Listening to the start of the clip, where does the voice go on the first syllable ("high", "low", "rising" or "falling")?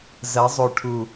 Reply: rising